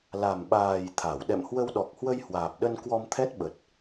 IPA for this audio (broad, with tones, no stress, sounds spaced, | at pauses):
l a˨˩ m ɓ aː˨˩ j t̪ʰ a˧˩ w ɗ ɛ̰˧˨ m h w ə˧ w ɗ ɔ˨˩ k̚ h w ə˧ j h w aː˨˩ p̚ ɗ ə˧ n k w ɔ˧ m t̪ʰ ɛ˦˥ t̚ ɓ ə˨˩ t̚